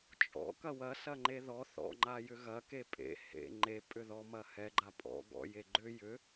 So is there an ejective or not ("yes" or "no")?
yes